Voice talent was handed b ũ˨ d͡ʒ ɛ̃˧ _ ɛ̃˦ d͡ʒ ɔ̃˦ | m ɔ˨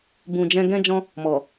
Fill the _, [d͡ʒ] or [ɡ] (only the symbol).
ɡ